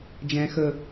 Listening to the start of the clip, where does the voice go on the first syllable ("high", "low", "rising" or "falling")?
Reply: high